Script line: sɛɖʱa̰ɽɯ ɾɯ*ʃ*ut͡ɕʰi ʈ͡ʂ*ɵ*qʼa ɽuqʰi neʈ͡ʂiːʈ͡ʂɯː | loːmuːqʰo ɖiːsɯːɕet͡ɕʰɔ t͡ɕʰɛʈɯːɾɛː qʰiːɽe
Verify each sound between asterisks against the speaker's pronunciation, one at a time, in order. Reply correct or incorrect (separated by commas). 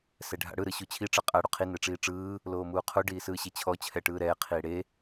incorrect, incorrect